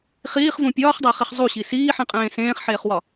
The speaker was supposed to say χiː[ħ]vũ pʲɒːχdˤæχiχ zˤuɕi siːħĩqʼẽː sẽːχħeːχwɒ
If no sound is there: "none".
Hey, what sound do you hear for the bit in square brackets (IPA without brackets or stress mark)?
χ